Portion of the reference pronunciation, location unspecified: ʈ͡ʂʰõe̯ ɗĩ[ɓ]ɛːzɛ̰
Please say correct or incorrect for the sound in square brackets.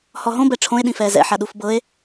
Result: incorrect